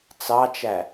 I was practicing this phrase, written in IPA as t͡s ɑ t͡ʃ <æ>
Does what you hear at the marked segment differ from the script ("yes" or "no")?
no